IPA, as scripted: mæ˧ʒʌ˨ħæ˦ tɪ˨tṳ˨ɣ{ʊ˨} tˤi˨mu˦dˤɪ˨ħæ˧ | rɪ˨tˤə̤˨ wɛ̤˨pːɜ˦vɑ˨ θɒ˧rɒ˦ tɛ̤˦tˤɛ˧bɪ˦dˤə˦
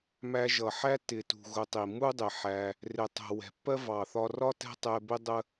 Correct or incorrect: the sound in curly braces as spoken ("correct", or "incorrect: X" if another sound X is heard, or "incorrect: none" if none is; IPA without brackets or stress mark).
correct